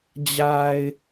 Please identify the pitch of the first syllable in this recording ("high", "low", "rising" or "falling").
low